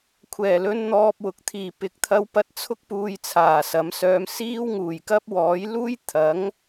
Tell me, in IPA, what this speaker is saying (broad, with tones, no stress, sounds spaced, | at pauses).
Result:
kʷʰ ɛː˨˩ l ɵ˧ n n̪ ɔː˧ p̚ w ʊ˨ k̚ t̪ʰ iː˨˩ p ɪ˨ k̚ t̪ʰ ɐ˧ w p ɐ˧ t̚ t͡sʰ ʊ˥ k̚ p uː˧ j t͡sʰ aː˨˩ s ɐ˨˥ m s œː˧ m s iː˥ w ŋ uː˨˩ j k ɐ˥ p̚ w ɔː˨˥ j l uː˥ j t̪ʰ ɐ˨˥ ŋ